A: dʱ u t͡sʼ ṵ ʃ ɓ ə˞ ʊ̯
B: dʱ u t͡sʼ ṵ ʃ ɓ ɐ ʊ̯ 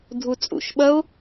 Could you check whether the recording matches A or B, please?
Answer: B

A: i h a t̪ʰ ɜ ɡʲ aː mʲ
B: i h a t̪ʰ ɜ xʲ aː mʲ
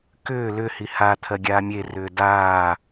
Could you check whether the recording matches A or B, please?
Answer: A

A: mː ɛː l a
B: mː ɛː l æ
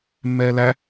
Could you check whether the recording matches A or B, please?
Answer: B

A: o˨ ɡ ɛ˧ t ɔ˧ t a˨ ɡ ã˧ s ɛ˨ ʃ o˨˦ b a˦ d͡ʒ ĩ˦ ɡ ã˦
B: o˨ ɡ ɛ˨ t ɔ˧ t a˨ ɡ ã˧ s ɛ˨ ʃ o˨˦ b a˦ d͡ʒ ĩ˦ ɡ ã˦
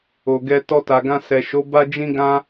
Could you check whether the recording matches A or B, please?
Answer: A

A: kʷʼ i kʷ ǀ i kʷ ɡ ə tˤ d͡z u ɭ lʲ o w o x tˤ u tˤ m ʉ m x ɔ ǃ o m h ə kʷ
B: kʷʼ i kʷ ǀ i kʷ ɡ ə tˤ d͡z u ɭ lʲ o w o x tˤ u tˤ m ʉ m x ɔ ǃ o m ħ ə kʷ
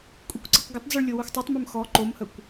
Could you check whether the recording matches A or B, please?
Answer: A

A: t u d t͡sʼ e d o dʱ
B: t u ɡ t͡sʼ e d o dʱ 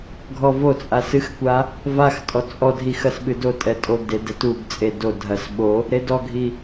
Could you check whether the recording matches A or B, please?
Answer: B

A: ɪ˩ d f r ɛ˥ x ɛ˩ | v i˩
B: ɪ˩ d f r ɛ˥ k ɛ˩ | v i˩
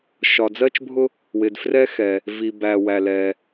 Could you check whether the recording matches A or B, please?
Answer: A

